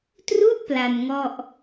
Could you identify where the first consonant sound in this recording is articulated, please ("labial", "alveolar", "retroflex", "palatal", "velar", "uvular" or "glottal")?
alveolar